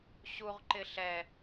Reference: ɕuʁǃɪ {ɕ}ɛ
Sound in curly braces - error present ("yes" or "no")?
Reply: yes